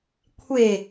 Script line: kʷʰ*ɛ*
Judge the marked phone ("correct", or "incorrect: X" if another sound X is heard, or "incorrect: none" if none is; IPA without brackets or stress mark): incorrect: e